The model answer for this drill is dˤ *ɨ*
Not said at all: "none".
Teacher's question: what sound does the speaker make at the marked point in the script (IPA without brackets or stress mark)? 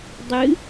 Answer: ɨ